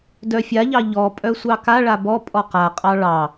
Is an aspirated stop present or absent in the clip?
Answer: absent